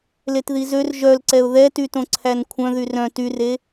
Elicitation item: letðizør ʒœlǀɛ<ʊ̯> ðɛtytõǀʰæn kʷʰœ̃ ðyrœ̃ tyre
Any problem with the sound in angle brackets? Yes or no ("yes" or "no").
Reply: no